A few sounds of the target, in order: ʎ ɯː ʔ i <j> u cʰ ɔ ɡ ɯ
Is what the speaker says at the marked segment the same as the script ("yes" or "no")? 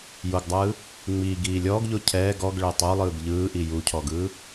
yes